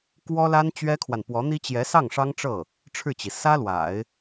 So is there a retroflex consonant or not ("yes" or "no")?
yes